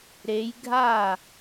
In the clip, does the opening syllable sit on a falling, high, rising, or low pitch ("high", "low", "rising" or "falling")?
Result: rising